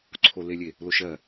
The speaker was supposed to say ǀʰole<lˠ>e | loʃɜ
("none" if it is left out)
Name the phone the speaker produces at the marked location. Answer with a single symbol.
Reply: lʲ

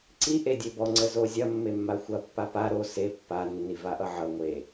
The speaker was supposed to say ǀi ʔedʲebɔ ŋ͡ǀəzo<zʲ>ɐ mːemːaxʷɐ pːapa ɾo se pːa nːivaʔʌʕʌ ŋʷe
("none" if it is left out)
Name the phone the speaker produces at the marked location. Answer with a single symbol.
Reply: zʲ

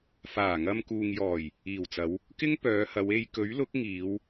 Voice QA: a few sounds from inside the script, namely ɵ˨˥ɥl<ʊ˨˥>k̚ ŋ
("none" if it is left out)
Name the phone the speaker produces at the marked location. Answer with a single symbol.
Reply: ʊ˨˥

